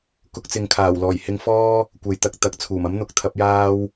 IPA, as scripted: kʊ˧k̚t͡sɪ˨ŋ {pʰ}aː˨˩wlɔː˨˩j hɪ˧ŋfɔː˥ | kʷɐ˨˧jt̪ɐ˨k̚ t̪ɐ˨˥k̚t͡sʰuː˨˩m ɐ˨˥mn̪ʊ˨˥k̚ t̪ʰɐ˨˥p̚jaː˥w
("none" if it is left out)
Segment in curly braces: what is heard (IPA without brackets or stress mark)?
kʰ